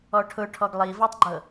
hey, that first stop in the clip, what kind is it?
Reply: aspirated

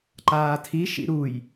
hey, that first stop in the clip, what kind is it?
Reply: click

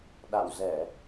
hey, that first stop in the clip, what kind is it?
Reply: implosive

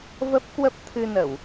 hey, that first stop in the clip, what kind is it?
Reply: plain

